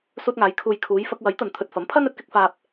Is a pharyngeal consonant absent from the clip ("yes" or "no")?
yes